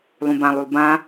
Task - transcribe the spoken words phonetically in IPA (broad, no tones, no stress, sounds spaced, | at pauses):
lˠ ũ b ã lˠ u lˠ b ã